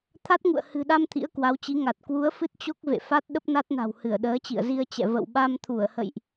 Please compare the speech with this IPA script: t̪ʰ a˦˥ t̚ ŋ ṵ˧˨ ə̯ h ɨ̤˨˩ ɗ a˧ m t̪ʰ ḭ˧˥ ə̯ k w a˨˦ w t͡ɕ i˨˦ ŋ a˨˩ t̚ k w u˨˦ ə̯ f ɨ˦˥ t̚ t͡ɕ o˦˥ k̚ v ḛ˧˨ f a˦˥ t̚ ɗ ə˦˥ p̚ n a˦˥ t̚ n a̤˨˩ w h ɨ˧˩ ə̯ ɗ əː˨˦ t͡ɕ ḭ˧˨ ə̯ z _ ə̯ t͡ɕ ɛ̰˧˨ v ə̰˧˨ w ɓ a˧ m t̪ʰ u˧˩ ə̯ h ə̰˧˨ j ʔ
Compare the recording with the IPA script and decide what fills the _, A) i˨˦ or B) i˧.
B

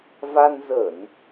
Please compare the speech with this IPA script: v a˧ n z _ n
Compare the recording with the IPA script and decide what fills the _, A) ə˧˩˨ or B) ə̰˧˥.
A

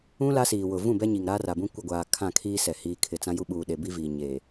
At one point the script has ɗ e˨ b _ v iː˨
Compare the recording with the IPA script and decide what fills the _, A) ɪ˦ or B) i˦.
B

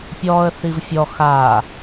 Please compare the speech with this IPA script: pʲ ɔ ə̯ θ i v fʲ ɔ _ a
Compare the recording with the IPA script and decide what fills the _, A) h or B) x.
B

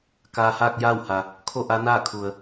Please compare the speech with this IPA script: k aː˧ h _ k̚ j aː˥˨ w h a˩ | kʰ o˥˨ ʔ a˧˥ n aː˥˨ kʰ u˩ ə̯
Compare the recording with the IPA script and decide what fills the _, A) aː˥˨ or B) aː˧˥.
A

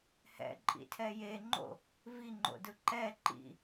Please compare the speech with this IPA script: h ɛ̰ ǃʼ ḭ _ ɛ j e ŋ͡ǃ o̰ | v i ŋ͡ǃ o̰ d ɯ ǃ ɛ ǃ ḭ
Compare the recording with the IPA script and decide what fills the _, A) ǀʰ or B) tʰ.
B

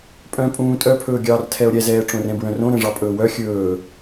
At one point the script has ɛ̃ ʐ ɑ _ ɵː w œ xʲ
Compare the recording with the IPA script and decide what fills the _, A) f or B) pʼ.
B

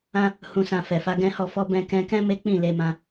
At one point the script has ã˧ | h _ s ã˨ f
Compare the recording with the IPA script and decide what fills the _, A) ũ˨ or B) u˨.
A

